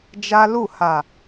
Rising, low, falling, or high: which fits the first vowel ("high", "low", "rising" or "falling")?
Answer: high